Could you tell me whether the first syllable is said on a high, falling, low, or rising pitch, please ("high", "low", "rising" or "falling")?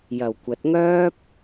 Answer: low